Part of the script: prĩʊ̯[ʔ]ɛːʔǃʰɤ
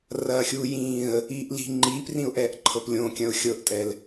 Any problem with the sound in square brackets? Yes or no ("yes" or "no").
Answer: no